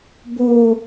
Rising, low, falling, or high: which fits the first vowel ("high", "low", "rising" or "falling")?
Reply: high